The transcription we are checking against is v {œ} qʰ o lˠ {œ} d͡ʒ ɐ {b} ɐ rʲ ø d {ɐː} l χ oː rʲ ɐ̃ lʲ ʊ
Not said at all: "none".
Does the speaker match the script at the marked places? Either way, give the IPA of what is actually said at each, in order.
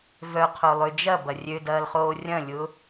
œ, ø, b, ɐː

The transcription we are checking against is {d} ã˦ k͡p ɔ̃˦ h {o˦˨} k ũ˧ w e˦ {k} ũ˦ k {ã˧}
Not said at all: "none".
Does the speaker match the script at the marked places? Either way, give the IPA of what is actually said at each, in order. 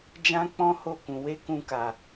d͡ʒ, o˦˨, k, a˧

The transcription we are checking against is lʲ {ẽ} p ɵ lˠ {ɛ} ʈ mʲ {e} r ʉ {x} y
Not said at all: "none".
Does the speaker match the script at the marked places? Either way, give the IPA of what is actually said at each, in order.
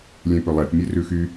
ẽ, ɛ, e, x

